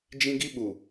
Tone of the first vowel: high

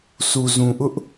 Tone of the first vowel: low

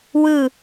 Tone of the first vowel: falling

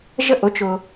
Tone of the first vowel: falling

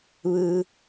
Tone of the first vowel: low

